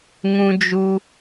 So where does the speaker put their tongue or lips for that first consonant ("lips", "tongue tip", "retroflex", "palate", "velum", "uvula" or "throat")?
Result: velum